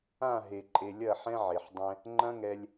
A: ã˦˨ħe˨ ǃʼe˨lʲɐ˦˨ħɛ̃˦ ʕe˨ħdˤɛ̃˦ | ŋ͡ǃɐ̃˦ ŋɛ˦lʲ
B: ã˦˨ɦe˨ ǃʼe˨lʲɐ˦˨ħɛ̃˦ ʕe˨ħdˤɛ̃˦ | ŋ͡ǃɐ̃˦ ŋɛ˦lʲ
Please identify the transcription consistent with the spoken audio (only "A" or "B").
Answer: B